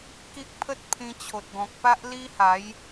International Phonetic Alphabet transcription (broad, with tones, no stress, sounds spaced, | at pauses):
k i˦ k̚ pʰ ə˦ t̚ pʰ ĩ˧ t͡ɕʰ o˨ t̚ ɡ ɔ̃˨ k̚ p a˦ ʔ l i˦ h a˨˦ j